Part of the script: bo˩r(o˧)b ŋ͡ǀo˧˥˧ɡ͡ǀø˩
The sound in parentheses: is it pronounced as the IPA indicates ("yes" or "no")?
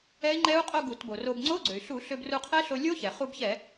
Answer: yes